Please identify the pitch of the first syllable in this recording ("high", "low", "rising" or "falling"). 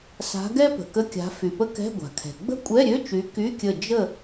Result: rising